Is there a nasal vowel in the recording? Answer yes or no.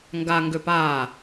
no